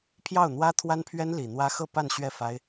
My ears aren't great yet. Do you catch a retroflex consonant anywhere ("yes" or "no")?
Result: no